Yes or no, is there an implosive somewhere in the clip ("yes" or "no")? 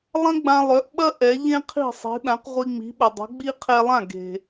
yes